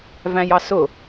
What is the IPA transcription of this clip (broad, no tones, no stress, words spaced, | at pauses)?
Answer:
væ̃jɑsʊ